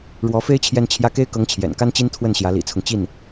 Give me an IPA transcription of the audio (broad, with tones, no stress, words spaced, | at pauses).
ɻwɔ˧˥fe˥ɪ̯ t͡ɕʰjɛ˥˧nt͡ɕʰjä˥˩ ke˥ɪ̯kɤ˧˥ŋ t͡ɕʰjɛ̰˨˩nka˥nt͡ɕi˥n t̪ʰwə˥˩nɕjä˧˥lḭ˨˩t͡sʰʊ˦ŋ t͡ɕi˥˩n